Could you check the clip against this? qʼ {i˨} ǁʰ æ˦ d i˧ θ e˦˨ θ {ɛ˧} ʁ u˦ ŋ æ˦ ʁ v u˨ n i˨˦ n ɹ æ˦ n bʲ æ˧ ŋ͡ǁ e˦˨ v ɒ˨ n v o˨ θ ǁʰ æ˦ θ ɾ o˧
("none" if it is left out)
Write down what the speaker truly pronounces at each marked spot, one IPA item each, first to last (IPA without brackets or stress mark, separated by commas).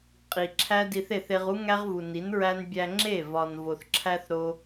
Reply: i˨, e˧